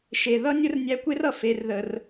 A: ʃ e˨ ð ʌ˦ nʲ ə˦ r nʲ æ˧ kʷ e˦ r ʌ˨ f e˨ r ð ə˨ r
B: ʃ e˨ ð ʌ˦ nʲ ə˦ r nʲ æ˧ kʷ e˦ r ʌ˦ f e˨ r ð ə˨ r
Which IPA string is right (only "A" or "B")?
A